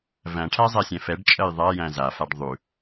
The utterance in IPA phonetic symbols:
v æ̃ ʈʰ æ zˤ ɛ sʲ ɛ̃ f ɛ ɖ t͡ʃʼ ɜ j ðˤ a j æ̃ z a f a ɖ ðˤ ʉ

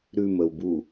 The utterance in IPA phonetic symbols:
ɾ ʉ m ə w b u

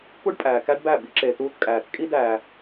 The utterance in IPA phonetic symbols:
k u˦ ɖ pʼ æː˨ k æ˦ ɖ b æ˦˨ b i˦ ǁ e˨ t uː˦ t kʼ æː˨ t kʼ i˦ d æː˨

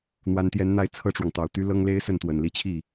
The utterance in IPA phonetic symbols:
n̪ w a˧˥ n t̪ j ɛ˧˥ n n̪ a˥˧ ɪ̯ t͡sʰ ɤ˥˩ ʈ͡ʂ w ɑ˩ ŋ t̪ ɑ˨˩ ʊ̯ t̪ y˥ l ɤ˥ ŋ l e˥ ɪ̯ s ə˥˩ n t̪ w ə˨˩ n l i˥˧ t͡ɕʰ i˥˩

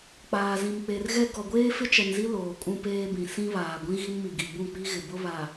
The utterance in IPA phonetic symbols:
k͡p aː˨ z ĩ˨ m k͡p e˨ r ɣ ɛ˦ ɡ ɔ˨ ɡʷ eː˦ f ɪ˦ t͡ʃ ɛ˨ n z i˦ l oː˨ kʼ ũ˦ p eː˦ b ĩ˨ s ĩ˦ β aː˨ ɡʷ ĩ˦ ɣ i˦ n m i˨ ɡ i˨ b ũ˦˨ k͡p i˦ ɣ ɪ˨ b ʊ˦ β a˨

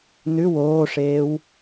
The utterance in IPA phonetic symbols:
n ʉ w oː ʂ eː w

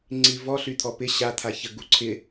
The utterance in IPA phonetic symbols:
ŋ͡ǀ i v ɔ ɬ y t̪ʰ ɔ p ɪ ɕ a t̪ʰ a ç ə ɡ u ǀʰ ɪ

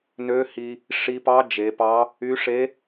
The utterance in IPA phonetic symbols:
n ø˧˥ h i˧ | ʂ i˧ p ɑ˧˥ d͡ʒ e˩˧ p ɑ˧˥ | y˧˥ ʂ e˧˥

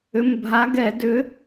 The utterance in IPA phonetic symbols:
ʏ˩˧˩ m bʱ a˨˥ ɡ ɛ˧˩˧ d ʏ˨˥

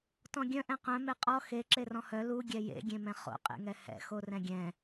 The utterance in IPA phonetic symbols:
t ɔ̃ ɡʲ œ̃ ʔ ɛ̃ q œ̃ m e qʼ ɔ x e ǁ e r ɔ̃ h œ l u ɡʲ ɛ j ḛ ɡʲ ẽ m ɛ̃ χ o̰ qʼ ḛ ŋ ɛ h ɛ̰ x o r ɛ̃ ɡʲ ɛ̃

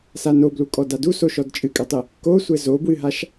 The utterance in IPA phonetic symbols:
s a n o b l u kʼ ɔ d a d u s o ʃ ɔ d t͡ʃʼ ɨ kʼ ɛ tˤ ɨ | k o sʷ ɘ z o b w ɨ ɦ a ʃ

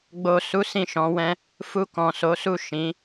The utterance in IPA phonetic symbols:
ɡ͡b o˨ s u˨˦ s ĩ˦˨ ʃ ɔ̃˨˦ w ɛ̃˦ | f u˧ k ɔ̃˨ s o˨˦ s u˦˨ ʃ ĩ˨˦

